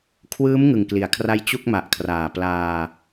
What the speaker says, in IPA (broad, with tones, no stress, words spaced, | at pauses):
kʰwɯː˦˥m ŋɯ˨˩ŋkli˩˦a̯kʰra˦˥j t͡ɕu˥˩k̚ma˨˩ʔkʰraː˨˩ plaː˧